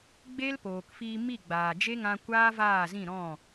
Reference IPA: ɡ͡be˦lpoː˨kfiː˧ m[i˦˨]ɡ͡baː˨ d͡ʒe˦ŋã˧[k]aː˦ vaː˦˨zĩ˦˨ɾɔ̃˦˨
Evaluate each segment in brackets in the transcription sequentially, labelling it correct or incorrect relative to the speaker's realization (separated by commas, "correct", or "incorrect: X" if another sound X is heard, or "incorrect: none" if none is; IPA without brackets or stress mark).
correct, incorrect: kʷ